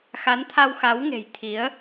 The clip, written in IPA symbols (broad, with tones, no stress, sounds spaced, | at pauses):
x a˨˦ n t̪ʰ a˧ w x a˨˦ w ŋ e̤˨˩ j t̪ʰ i˨˦ ə̯